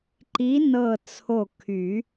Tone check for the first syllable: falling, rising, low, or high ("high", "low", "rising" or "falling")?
rising